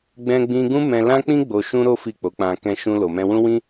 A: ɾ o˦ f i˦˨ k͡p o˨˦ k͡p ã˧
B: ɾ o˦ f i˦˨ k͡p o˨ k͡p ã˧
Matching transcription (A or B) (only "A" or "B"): A